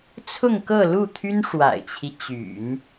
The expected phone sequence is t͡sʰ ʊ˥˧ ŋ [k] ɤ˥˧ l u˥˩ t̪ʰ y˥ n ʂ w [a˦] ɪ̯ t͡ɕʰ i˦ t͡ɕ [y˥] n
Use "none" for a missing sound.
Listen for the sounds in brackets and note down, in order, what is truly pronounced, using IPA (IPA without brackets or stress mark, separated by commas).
k, a̰˨˩, y̰˨˩˦